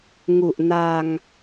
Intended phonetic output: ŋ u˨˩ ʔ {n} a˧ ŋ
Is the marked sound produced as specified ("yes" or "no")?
yes